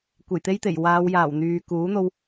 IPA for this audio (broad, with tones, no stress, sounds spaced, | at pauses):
kʷ e˨˩ j t̪ e˥ j t̪ e˨˩ j w aː˨˧ w j aː˨˩ w n̪ yː˨ k uː˨˥ n̪ o˧ w